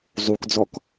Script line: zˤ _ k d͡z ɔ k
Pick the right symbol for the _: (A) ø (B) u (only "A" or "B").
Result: B